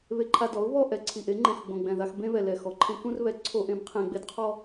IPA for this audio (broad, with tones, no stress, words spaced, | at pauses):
βe˧ǃʰa˧dɔ˩˥ʊ̯ βɔ˥˧ʔɛ˨˩ ǀʰi˨˩ʔe˩˥ ŋ͡ǃẽ˨˩xɡ͡bõ˨˩ɡ͡bɛ̃˨˩ ða˧x bẽ˧ βɛ˨˩lɛ˨˩ xɔ˩˥ǃʰẽ˧ kũ˥˧rβɛ˩˥ ǀʰo˧ʔẽ˩˥b qʰẽ˨˩ ɡ͡be˥˧dqʰɔ˥˧